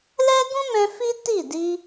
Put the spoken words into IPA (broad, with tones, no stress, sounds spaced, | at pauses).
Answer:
l ɛ˦ ɡ ũ˦ m ɛ̃˧ f i˦ t i˦˨ d i˧